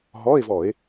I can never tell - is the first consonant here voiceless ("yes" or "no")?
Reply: no